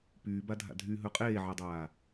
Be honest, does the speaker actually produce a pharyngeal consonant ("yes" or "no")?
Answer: yes